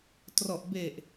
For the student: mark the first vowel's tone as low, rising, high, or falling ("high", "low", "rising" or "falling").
low